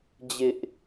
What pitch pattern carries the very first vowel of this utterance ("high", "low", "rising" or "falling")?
high